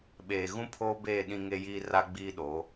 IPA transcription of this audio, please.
ɓeː˨ ɣũ˦pʰoː˦beː˦˨ ɗĩ˦ŋe˦jiː˦ ra˦ɡ͡biː˦ɗoː˨˦

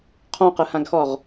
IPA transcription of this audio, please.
qʰɔ̃qɯhãɡxɔʁ

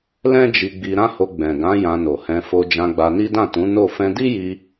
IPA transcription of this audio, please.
lɛ̃˦d͡ʒi˧ɡ͡bi˧ ɾã˦ho˧ ɡ͡bɛ̃˨ɡã˨˦ jã˧no˨hɛ̃˧ fo˧d͡ʒã˧ɡ͡ba˧ni˦ dã˦˨tũ˨˦ no˦˨ fɛ̃˧di˦ji˧

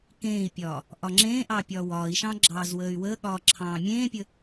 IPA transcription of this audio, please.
kẽːi̯pʲɒː | ʔɒŋ͡ǁẽːʔɑ pʲɒːwɒːi̯ʃɑ̃ ɡ͡ǁɑːzwəːy̯wəːɠɒː ǁʰɑ̃ːmʲẽːpʲə

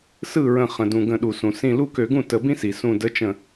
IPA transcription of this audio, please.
sɯ˥˩ɹə̃˧˩ χə̃˩dũ˩ ɡə̃˧˩˧ɗu˩sũ˩ sĩ˧˩lu˥˩kø˧˩˧ɡũ˥˩ tə˧˩˧bĩ˥si˩ sũ˧˩də˧˥ t͡ʃə̃˧˩

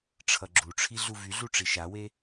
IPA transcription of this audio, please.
ʈ͡ʂʰʌɡ͡ǁuʈ͡ʂʰi ɮuvyɮu ʈ͡ʂiʃawe

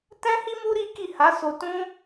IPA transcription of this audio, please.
tɛ̃˦hi˦mu˦ ɾi˦ki˦˨ ha˨˦so˧tũ˦

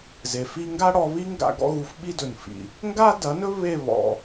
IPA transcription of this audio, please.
ze˨fi˦ ŋɡa˦ɽɔ˧ βi˦ ŋɡa̰˧ ɡɔ̰˦ɣu˧fɓi˦dɵ˨n fḭ˨ | ŋɡa˦dɐ˨˦nɵ˦ βe˦˨βɔ̰˨

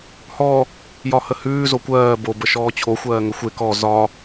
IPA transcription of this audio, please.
hɔ | jɒhəhʉː zokʷɜː bo bəʃɔːt͡ɕʰo xʷɜːŋəxʷe kɔ zɒ

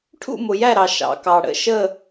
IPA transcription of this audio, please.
ʈʰṵ˥˧mʊ˨jæ˥˧ɾɑ˨ ʃɑ̰˨kɑ˨ ɽə̰˥˧ʃə˥˧

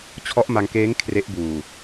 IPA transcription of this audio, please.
t͡ɕʰɔ˦˥ʔma˧ŋkeː˦˥ŋ kʰre˦˥ʔbuː˨˩

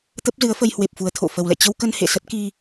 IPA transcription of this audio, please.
t̪ə˦˥p̚zɨ˨˦ə̯fə˧j hwe˨˩p̚fu˨˩ə̯ t̪ʰo̰˧˨fə˨˩wlɛ̰˧˨ t͡ɕə˧wkə˧n hḛ˧˨sə˦˥t̚ki˧

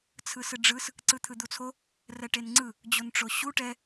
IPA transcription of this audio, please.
t͡sʰɯsɯɖ͡ʐɯs | ǀɯt̪ʰɯd̪ut͡sʰo | rɛʈenŋ͡ǀɯ | d͡ʑonʈ͡ʂoɕu ʈɛ

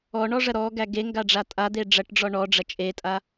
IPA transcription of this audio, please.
ɔɳɔʐɐ ɾɔɡæ ɡeŋɡaɖ͡ʐa tʼad̪e ɖ͡ʐɐʈɖ͡ʐɔ ɳɔɖ͡ʐɐ t͡ʃʼetʼa

